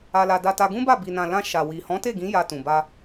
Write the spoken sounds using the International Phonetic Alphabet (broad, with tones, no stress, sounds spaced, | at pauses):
a˧ l a˧ d a˧ t a˧ ɡ ũ˦ b a˦˨ b i˨ n ã˨ l ã˧ ʃ a˨ w i˨ h ɔ̃˨˦ t e˦˨ ɡ ĩ˨˦ j a˧ t ũ˨ b a˧